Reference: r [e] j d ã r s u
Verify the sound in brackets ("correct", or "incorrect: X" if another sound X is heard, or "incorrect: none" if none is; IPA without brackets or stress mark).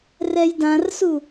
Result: incorrect: ɛ